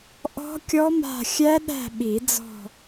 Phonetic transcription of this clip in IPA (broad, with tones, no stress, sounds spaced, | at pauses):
ʔ ɔ̤˦˥ kʲ ɔ˦˥ m a̤˦˨ xʲ æ˦˥ ɗ æ̤˦˨ ɓ i˨˩˦ d͡z ɔ̤˦˨